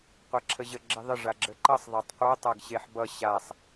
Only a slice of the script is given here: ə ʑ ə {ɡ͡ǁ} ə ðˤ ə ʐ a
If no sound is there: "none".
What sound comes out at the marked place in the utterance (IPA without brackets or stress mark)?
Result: ɡ͡ǁ